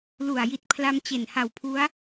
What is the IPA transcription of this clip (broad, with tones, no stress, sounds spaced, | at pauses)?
l u˨˩ a̯ j i˨˩ t̚ pʰ l a˧ m t͡ɕ e˨˩ n h a˨˩ w pʰ u˦˥ a̯